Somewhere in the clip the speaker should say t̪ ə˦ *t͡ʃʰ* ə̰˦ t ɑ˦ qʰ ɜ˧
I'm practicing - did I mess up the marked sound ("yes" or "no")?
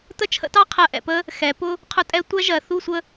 no